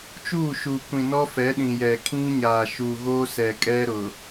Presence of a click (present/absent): absent